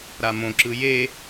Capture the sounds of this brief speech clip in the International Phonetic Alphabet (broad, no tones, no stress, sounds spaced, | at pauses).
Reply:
ɾ a m õ ǁ ɯ j e